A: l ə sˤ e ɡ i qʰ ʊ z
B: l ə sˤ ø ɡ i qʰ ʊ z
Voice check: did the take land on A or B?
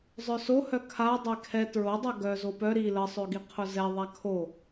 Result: B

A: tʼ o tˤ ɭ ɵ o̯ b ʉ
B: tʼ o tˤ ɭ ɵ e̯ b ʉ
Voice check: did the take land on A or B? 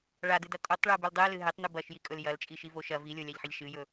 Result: B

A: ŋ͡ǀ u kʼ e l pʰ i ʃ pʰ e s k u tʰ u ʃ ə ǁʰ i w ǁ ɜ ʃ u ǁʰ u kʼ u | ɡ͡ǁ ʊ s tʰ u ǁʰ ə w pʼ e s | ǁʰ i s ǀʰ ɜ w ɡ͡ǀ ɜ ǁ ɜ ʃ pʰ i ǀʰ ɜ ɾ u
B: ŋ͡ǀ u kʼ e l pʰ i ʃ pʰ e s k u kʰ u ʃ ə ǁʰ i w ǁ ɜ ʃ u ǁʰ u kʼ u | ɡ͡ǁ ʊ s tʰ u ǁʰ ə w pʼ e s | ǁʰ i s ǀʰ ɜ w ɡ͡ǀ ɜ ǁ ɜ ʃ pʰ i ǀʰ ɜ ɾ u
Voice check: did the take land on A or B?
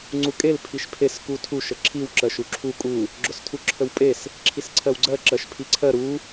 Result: A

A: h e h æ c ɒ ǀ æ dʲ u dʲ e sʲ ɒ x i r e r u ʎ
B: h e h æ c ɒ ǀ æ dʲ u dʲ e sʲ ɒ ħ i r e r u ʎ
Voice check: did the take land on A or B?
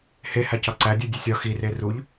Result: A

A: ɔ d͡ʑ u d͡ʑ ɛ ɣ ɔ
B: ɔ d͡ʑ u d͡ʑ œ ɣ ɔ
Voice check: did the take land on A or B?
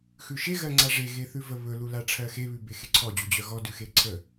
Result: B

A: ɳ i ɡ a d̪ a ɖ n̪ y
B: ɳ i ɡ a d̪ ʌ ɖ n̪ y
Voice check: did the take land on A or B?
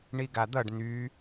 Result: B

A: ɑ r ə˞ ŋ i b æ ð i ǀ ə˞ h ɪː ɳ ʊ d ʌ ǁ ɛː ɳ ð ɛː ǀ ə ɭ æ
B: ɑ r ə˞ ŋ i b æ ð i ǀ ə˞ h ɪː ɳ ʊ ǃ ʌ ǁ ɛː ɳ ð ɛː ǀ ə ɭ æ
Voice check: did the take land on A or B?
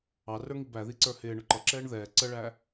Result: B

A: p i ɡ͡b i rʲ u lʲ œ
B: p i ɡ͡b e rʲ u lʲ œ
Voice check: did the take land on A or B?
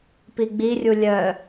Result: A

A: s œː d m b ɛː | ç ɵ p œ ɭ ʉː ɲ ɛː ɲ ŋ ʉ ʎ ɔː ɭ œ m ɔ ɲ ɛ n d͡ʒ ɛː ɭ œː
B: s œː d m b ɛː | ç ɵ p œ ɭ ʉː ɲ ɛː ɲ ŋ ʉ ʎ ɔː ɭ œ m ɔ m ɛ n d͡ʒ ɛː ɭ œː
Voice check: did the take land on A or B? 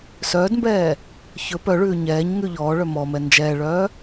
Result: B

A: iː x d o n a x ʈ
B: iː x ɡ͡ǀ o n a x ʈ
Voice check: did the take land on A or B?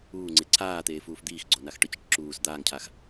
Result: B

